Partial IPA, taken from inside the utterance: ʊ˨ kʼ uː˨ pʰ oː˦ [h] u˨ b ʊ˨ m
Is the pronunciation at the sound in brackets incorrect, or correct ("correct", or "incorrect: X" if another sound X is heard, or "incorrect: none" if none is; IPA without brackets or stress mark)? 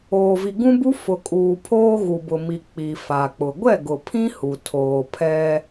incorrect: ɣ